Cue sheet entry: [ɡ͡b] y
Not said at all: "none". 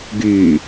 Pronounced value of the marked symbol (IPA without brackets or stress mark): ɡ